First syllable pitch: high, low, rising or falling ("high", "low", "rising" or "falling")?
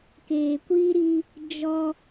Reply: low